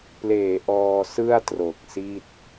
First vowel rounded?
no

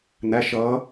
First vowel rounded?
no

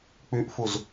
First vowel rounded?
yes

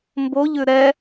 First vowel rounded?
yes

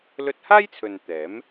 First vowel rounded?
yes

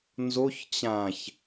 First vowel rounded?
yes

